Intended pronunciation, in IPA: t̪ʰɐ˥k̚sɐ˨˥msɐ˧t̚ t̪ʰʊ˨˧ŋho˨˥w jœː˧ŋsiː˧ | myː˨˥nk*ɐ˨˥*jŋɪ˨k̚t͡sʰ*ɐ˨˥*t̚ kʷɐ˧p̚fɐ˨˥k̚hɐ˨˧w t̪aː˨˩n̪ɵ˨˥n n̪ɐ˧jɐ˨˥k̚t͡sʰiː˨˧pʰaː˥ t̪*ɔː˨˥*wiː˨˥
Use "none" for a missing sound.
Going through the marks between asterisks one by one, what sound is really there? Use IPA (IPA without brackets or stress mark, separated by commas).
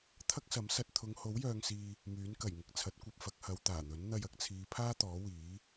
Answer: ɐ˨˩, ɐ˨˥, ɔː˨˥